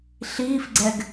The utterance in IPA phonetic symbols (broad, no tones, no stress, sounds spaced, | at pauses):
ɬ iː f ɡ͡ǀ ɛ ɡ